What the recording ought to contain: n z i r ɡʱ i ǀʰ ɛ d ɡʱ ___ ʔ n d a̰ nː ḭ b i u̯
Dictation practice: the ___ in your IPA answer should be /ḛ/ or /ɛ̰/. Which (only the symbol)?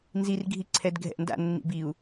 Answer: ɛ̰